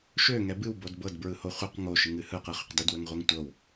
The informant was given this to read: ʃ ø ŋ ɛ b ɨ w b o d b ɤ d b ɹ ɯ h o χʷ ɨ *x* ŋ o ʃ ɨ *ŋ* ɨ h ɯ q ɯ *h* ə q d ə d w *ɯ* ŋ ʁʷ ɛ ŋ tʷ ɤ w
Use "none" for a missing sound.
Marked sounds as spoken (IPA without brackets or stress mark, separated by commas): q, ŋ, χ, ə